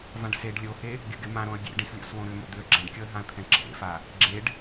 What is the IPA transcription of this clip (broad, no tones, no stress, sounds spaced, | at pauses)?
v ã ɖ s e ɖ lʲ o h e | ɡʲ ʊ ɡ ɪ m ã ɾ õ ə̯ ɡʲ ḛ ɖ ĩ s lʲ o̰ s w õ ɾ ʏ m o̰ d̪ ʏ ə̯ ɡ͡ǁ ã ɖ kʲ ɔ ə̯ ɦ ã ə̯ t̪ʰ ɛ̃ ǁʰ ḛ f a | ɡ͡ǁ e ɖ